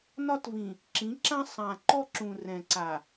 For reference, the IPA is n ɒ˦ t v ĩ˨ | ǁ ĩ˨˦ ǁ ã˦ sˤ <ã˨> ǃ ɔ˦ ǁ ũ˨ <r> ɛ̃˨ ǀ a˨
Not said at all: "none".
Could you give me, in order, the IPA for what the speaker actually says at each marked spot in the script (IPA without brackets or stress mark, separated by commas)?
ã˨, r